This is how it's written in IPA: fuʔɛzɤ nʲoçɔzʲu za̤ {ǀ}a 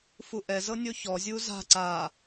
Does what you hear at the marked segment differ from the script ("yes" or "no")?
no